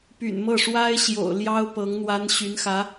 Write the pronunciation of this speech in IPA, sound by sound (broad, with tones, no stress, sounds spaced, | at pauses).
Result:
p y̰˨˩ n m ɤ˥˩ ʂ w a˥ ɪ̯ ɕ j o̰˨˩ ʊ̯ l j ɑ˥ ʊ̯ p ɤ˧˥ ŋ n̪ w a˥ n ɕ y˧˥ n x ä˧˥